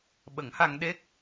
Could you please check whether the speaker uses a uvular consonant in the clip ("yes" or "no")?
no